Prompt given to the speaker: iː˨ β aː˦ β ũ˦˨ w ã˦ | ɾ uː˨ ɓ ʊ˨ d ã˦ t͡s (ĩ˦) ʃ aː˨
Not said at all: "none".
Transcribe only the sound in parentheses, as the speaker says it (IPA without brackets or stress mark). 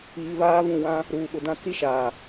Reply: i˦